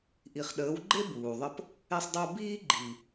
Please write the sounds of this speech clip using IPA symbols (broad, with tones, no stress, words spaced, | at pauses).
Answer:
ʔi˨χɗəː˨˦wɡ͡ǃe˦ buː˨ðˤə˦p | e˧sˤdˤu˧ biː˦ ɡ͡ǃi˨